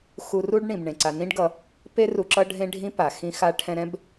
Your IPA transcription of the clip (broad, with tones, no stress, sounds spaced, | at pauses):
x u˨ r u˦ ɖ ɳ ĩ˩ b ɳ ẽ˩ ǀ a˨ n ĩ˥ ɖ ɡ ʌ˨ | p e˥ r u˨ ǁ ʌ˦ ɖʱ ẽ˦ ɖʱ ĩ˦ p a˩ x ĩ˦ x a˦ ʈʰ ɛ̃˦ ɾ ɛ̃˥ b